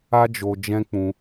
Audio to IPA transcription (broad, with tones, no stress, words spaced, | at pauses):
a˦d͡ʒo˧d͡ʒɛ̃˦ k͡pũ˧